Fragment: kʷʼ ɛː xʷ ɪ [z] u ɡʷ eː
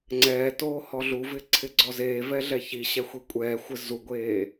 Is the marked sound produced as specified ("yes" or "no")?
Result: yes